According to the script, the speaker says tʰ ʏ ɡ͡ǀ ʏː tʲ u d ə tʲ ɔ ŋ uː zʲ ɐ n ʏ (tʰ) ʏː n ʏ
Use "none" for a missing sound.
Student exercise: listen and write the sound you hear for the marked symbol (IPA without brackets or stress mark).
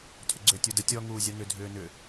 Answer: dʱ